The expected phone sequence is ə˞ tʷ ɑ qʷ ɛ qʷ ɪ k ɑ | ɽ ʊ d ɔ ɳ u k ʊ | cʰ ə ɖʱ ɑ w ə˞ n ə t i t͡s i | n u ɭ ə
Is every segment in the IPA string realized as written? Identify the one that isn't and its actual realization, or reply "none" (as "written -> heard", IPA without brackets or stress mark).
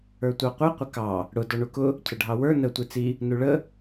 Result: t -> tʷ